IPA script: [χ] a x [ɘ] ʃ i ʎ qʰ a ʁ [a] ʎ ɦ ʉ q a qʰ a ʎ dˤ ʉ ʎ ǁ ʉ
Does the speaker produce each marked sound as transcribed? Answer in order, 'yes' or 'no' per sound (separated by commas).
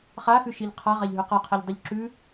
yes, no, yes